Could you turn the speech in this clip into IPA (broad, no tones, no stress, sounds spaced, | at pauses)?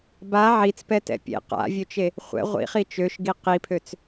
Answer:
b a ʕ i t͡s p ɛ t ɛ̰ pʲ ḛ q a̰ vʲ ø t͡ʃ e | χʷ ɛ̰ ʁʷ ḭ χ i t͡ʃ ø ʃ ɡ i q i pʰ ø t͡s